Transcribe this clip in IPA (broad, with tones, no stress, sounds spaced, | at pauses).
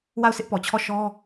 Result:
w a˦˨ ʊ̯ s ɪ˦ ʔ p ɔ˨ t͡ɕʰ ɔ˦˨ ʃ ɔ˦